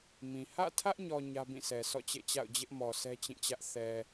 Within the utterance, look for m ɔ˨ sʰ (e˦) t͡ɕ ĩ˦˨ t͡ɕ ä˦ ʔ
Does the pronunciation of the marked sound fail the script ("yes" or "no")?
yes